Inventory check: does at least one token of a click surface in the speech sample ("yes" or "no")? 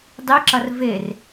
yes